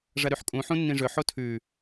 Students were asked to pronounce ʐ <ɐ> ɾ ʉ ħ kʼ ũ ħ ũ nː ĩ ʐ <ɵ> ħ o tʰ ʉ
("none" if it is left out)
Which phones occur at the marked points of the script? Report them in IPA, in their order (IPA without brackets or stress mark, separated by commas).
ɐ, ɵ